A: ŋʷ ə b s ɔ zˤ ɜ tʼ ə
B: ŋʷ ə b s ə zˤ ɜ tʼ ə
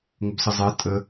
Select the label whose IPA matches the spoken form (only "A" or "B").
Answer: B